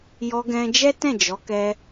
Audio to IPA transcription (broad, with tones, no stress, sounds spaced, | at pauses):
j ɔ˧ ɡ ɛ̃˧ d͡ʒ ɛ˦ t ɛ̃˦˨ d͡ʒ ɔ˨˦ k ɛ˧